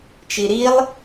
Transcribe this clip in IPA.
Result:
t͡ʃ i ɾ i lˠ

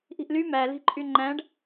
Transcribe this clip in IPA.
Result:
ʔ i̤ ʔ l y m æ l i̤ ǃʼ y ŋ͡ǃ æ̃ ɖ

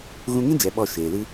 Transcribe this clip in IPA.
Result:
ɣ ũ˧ ŋ ĩ˦ d͡ʒ ɛ˨ ɓ ɔ˦˨ ʃ eː˨ l ɨ˦

